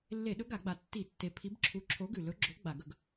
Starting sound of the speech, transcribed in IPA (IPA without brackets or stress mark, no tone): lː